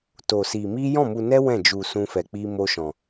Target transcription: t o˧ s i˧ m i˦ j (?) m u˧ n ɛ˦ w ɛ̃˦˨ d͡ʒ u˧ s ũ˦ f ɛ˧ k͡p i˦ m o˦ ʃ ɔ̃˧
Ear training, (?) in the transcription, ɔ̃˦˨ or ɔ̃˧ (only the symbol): ɔ̃˦˨